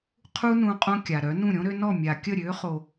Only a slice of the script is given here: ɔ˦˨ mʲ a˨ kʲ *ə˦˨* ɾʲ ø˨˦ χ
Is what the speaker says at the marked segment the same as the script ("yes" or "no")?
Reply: yes